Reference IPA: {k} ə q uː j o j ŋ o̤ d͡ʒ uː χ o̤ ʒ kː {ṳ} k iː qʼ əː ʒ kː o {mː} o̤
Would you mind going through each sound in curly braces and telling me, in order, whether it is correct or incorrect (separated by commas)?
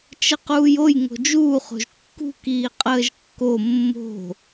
incorrect, correct, correct